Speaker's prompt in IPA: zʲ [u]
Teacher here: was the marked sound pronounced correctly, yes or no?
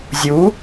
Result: yes